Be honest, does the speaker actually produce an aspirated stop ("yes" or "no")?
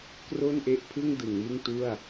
yes